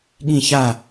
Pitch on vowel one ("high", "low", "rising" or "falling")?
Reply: falling